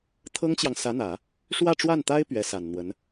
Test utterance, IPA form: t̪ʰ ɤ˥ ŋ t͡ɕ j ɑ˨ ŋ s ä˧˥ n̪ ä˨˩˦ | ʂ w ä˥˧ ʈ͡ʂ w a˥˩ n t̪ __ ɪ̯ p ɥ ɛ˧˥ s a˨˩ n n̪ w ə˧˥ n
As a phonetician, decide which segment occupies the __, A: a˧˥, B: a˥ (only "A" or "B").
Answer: B